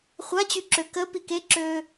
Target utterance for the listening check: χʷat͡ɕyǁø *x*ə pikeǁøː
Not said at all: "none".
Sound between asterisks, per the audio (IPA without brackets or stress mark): k